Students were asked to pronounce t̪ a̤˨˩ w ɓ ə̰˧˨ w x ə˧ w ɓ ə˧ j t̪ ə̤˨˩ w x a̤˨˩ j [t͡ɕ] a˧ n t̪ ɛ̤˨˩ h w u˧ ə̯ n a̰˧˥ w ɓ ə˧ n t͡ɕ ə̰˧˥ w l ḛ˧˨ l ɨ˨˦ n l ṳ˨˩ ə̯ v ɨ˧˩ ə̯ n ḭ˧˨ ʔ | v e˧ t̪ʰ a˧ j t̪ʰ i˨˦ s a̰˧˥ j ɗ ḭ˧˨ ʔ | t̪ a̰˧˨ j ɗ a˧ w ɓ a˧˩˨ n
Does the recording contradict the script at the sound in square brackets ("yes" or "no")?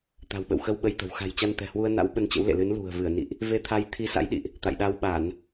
no